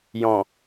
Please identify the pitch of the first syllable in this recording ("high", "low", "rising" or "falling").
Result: low